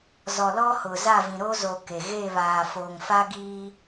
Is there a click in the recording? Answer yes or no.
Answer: no